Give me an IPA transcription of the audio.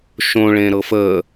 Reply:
ʃõɭẽɾɤf ə

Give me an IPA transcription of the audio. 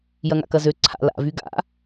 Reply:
jɐŋa̰kɐzø ǀʰa̰ la̰vy ɡa̰

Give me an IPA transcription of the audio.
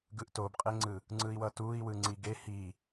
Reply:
ɡɯʔtobqʼeŋ͡ǀɯ | ŋ͡ǀɯi̯wʌtui̯ wɯŋ͡ǀiɡe hi

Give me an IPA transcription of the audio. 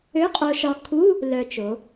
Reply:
ø˧˥˧qʼo˧ʃɒ˧ kʰu˧˥˧ | lœ˧t͡ʃo˩˧

